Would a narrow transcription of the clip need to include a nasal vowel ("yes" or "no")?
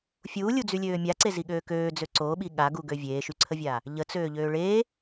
no